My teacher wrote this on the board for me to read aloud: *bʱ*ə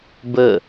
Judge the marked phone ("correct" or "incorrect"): incorrect